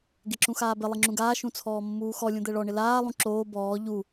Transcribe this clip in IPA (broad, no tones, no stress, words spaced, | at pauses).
ɡeǁũxaːbɪ lˠiŋ͡ǁũɡaː ʃũt͡sʰɔːmːuːxɔ lʲũd̪ɛɭɔ ɳɪlaː lˠũǁoː bɔː ʎu